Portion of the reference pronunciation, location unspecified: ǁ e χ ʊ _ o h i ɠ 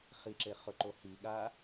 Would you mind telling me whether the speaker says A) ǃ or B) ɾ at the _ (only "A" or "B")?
A